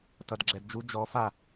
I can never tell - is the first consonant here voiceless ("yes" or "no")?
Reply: yes